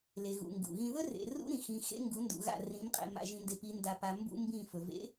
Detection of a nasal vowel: present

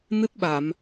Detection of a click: absent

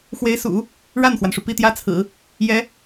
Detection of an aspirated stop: present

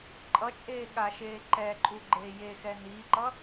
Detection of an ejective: present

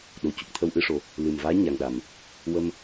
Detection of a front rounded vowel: absent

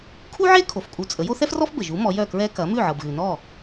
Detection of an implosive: absent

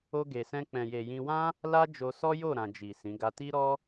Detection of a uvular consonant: absent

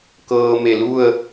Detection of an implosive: absent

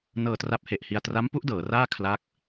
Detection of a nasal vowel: absent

